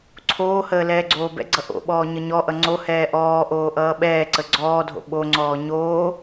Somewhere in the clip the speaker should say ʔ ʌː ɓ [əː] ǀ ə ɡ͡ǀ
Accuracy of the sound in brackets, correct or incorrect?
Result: incorrect